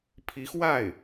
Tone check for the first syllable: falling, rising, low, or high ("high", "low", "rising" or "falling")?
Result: rising